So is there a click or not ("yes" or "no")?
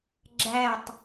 yes